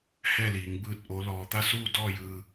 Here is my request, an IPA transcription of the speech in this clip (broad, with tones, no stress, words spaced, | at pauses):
hɛː˥˨liː˩˧ŋ bɯː˥˨t̚ʔo˧˥lɔː˧ t̪a˥˨suː˥˨dɔː˥˨jɯː˧